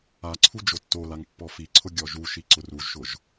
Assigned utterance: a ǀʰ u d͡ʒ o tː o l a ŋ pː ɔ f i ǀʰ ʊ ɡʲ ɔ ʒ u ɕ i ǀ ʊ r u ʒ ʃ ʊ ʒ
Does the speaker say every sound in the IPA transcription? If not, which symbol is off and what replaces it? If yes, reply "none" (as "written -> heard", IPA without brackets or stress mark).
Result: ɕ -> ʃ